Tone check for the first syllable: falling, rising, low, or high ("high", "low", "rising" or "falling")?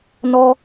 high